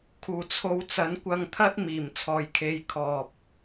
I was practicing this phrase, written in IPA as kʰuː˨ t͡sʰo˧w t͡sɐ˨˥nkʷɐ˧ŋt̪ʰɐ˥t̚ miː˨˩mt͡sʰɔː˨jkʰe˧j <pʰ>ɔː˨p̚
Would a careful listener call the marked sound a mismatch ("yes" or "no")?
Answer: yes